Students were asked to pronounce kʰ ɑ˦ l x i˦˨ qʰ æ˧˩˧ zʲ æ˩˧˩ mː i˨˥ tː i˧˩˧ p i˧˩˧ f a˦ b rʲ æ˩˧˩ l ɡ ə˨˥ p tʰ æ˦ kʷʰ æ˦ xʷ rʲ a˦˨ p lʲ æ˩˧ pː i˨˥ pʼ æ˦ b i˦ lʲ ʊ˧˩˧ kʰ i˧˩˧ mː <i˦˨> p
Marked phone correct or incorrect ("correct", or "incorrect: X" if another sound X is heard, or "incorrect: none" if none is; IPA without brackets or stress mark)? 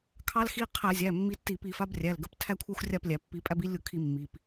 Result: incorrect: i˩˧˩